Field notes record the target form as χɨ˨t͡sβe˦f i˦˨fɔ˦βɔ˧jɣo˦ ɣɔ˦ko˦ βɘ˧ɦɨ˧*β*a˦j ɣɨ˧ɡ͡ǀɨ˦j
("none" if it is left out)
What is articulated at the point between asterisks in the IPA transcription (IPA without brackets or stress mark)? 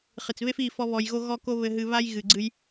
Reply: β